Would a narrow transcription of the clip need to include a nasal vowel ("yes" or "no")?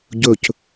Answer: no